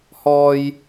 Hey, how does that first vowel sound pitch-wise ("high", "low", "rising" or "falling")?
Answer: low